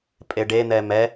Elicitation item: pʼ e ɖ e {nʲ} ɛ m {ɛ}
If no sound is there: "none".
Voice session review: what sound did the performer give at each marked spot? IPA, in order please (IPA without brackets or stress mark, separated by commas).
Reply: n̪, ɛ